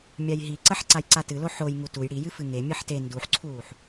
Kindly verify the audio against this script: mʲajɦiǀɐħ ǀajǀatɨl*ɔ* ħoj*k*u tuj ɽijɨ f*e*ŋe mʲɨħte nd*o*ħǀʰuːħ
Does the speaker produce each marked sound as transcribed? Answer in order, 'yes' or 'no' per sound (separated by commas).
no, no, no, no